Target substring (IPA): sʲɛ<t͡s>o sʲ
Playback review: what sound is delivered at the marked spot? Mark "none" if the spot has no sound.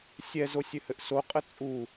z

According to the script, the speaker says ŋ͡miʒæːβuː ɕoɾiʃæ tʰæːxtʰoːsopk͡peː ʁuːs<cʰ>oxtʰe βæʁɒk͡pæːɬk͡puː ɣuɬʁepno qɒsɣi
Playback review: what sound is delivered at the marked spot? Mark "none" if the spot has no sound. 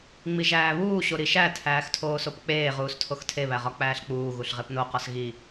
tʰ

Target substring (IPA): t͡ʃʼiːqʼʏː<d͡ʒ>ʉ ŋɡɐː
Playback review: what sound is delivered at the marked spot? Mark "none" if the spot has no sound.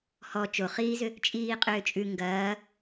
t͡ʃʼ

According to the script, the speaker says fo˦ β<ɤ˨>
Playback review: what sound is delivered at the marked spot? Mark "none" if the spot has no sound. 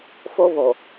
o˨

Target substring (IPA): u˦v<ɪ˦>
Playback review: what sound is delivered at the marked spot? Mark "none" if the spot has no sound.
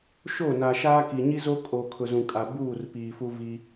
i˦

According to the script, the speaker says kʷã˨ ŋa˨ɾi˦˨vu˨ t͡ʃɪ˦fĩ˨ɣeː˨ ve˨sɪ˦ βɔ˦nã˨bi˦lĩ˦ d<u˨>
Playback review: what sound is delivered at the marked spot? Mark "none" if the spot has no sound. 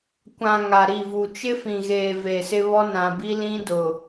ʊ˨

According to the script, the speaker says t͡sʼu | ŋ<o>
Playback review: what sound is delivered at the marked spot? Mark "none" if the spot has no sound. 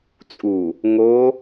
o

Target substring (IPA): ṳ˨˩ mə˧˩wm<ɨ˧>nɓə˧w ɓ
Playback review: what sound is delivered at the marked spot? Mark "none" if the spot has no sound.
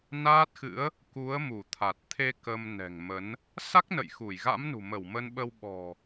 ə˧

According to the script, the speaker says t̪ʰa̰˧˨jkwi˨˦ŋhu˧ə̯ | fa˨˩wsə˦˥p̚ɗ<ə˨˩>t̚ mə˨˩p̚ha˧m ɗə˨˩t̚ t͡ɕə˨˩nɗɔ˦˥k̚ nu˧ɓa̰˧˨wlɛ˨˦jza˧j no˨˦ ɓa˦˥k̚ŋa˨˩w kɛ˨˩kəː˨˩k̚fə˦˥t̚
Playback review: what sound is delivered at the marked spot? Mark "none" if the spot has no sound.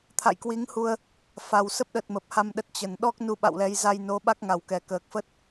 ə˨˩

